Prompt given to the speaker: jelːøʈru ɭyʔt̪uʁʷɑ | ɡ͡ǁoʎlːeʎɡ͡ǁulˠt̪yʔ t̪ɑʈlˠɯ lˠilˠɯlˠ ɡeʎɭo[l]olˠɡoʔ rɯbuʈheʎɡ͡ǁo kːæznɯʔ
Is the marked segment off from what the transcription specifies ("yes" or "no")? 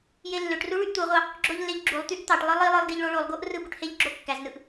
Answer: yes